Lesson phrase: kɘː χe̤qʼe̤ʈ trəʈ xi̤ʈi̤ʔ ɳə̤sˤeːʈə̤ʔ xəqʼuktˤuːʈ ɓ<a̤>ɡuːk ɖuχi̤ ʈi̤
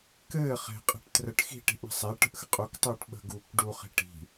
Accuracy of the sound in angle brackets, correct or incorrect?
incorrect